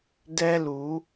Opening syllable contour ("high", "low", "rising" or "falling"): high